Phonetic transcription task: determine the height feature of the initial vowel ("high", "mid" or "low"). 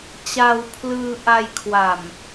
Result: low